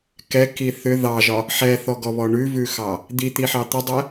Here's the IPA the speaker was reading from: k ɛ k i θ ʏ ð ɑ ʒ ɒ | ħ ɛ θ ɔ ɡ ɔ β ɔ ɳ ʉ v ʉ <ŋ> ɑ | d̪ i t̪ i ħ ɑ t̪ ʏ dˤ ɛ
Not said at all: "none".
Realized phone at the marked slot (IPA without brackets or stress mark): x